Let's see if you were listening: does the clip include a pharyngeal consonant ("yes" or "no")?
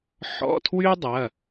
yes